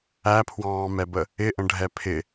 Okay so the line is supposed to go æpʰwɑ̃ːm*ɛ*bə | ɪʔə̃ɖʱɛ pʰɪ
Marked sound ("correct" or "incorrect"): correct